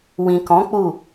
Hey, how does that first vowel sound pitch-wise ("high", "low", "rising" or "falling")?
low